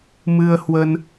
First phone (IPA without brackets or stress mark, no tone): m